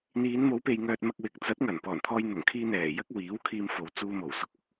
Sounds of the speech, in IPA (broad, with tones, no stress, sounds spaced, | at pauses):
n̪ iː˨˧ n m o˨˧ w p e˨ j ŋ œː˨ t̚ m ɐ˧ k̚ w ɪ˨ k̚ t͡s ɐ˨˥ t̚ ŋ ɐ˨˩ n p ɔː˨˩ n t̪ʰ ɔː˧ j n̪ ʊ˨˩ ŋ kʰ iː˧ n̪ ɛː˨˩ j ɐ˥ k̚ w iː˨˥ w kʰ iː˧ m f o˨ w t͡s uː˧ m o˨˩ w s ʊ˨˥ k̚ ʊ˨˥ k̚